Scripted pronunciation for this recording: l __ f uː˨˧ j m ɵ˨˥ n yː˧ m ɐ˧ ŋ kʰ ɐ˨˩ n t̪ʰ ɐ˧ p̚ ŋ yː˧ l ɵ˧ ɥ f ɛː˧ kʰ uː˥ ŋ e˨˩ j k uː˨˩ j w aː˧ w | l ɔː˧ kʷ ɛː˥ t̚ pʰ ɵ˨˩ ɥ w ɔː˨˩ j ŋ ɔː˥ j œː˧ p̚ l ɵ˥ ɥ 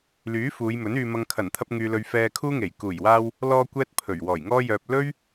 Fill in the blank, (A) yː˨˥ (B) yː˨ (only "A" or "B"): A